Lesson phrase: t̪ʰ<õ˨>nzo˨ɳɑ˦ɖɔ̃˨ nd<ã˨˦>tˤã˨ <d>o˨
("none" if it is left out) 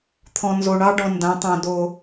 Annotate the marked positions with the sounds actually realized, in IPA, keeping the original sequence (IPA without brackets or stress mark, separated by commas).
ɔ̃˨, ã˨˦, d